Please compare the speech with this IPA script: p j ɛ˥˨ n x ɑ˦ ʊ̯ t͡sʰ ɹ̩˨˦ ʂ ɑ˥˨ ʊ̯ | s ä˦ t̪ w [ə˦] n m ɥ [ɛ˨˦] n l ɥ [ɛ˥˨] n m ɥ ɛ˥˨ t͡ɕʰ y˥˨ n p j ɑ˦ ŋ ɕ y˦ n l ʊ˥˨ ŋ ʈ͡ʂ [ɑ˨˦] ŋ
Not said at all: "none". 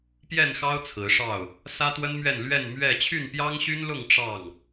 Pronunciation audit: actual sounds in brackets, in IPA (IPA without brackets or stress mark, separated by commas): ə˦, ɛ˥˨, ɛ˥˨, ɑ˥˨